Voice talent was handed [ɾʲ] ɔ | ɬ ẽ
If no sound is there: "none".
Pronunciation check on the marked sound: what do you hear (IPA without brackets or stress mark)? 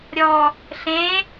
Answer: ɾʲ